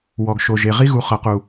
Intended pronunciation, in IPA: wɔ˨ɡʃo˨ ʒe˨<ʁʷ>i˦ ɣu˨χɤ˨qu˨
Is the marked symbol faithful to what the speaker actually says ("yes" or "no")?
no